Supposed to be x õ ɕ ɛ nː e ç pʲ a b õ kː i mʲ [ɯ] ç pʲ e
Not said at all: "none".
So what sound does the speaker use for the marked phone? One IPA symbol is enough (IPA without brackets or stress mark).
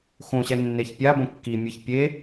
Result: ɯ